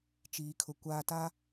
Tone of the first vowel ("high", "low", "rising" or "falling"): low